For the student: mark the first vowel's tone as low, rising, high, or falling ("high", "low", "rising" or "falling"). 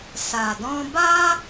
low